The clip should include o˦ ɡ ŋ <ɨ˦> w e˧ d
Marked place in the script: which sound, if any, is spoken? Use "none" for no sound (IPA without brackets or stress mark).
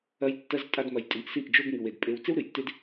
ɨ˧